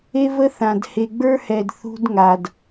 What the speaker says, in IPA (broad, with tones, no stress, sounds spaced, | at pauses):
e˦ v ə˦ θ ã˨ d h e˨ ɡ͡b ə˞˦ h ɛ˨ d θ ṳ˦ d ŋ a˨ d